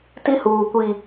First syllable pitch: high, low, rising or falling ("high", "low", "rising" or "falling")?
high